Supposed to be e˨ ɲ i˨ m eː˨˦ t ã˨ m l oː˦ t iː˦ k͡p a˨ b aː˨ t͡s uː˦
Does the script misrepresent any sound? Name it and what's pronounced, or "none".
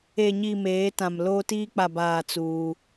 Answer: none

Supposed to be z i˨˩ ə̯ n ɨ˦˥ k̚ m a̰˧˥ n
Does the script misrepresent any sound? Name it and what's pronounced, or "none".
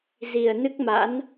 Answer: none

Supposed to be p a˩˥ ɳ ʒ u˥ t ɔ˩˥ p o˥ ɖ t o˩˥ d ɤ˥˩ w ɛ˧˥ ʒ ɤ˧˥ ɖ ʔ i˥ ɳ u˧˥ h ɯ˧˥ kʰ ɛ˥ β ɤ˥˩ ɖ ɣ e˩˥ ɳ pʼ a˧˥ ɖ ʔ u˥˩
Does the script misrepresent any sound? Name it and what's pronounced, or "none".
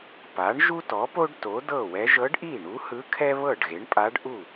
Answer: i˥ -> i˥˩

